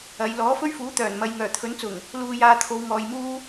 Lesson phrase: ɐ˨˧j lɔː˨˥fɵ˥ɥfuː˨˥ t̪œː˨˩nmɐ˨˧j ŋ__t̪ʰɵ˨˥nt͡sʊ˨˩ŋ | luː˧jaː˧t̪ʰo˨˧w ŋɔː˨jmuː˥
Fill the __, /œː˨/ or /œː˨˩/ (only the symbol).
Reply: œː˨˩